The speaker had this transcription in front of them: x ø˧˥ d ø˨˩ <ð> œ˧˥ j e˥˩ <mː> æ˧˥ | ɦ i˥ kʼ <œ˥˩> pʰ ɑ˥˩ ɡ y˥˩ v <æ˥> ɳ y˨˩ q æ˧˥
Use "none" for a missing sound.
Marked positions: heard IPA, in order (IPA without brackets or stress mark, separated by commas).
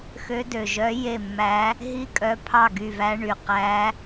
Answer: ʒ, mː, œ˧˥, æ˥